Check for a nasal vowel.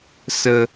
absent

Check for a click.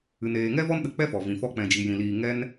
absent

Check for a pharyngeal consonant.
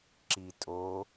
absent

